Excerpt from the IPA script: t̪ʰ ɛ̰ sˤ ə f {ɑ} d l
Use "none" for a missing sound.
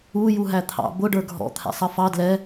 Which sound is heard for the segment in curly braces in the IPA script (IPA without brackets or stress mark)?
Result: ɑ